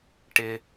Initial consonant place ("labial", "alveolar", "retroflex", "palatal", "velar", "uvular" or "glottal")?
retroflex